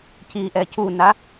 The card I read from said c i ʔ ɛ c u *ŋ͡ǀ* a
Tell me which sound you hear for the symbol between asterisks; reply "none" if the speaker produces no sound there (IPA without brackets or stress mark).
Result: n